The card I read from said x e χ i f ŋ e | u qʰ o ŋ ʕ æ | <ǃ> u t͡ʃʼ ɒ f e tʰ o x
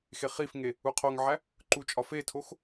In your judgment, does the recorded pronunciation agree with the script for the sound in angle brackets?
yes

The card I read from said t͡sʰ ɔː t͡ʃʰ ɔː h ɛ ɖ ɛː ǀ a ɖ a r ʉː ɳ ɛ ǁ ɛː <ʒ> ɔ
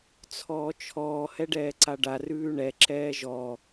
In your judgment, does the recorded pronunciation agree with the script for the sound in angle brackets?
yes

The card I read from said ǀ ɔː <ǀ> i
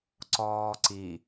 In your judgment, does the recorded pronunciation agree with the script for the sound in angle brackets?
yes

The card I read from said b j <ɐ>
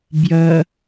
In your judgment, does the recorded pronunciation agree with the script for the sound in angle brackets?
yes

